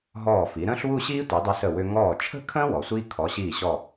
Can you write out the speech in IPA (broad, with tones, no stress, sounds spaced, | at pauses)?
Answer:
ɦ ɔː˧˩ f i˩˧ ɾ ə̃ː˥ ɬ w u˥˧ ɕ iː˥ tʷ i˩˧ dˤ ə˧ s ə˧˩ w ʏ˧ ŋ ɔː˧˩ t͡ʃʰ ə̤˥˧ kʰ ə̃ː˥ w ɔ˩˧ sʷ iː˥ kʰ ɔ˩˧ ɕ iː˧˩ ɕ ɔ˧˩